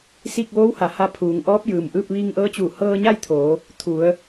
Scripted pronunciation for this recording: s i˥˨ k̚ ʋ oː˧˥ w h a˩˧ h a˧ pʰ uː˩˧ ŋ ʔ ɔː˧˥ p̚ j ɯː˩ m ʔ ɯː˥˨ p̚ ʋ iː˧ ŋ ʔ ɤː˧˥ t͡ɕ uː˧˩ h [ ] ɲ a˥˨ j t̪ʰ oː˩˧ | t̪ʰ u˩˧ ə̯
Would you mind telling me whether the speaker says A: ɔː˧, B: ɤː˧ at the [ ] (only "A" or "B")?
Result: B